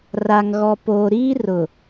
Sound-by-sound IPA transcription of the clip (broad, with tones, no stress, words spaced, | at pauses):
ra˨ŋɣɔ˨poː˨ɾiː˦ rʊ˨